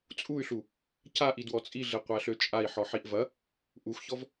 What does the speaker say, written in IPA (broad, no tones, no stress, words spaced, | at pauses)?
t͡sʼuy̯ɬu | caʔi dwɔt͡sʼiɮe qʷæɬøt͡ʃʼai̯ ħɔħiʔvɐ | ʔuxçɔv